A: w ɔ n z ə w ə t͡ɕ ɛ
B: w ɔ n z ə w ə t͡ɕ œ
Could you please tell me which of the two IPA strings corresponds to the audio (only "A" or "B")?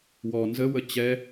A